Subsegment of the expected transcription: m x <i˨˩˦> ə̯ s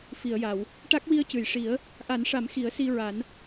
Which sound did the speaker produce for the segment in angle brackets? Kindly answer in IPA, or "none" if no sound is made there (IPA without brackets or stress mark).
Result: i˨˩˦